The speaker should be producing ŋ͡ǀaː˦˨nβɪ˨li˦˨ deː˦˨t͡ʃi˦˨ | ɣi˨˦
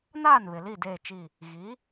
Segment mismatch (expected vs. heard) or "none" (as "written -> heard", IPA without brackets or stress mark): ŋ͡ǀ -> n